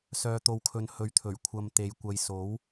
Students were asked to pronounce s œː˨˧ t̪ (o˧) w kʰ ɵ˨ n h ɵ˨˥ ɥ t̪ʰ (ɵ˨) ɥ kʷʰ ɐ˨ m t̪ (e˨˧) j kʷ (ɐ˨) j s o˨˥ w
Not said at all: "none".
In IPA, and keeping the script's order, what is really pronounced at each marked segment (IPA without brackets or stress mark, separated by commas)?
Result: o˨, ɵ˨˩, e˨˧, ɐ˨